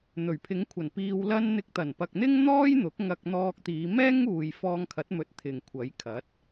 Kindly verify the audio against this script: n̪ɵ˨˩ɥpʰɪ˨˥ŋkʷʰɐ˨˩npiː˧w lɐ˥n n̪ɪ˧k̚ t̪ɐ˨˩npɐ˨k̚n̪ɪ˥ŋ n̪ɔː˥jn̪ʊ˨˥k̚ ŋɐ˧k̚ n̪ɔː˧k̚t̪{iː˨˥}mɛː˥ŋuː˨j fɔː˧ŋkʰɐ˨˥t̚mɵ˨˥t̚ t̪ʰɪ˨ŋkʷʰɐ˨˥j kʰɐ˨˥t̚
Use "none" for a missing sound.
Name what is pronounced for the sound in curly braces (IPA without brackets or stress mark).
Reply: iː˨˧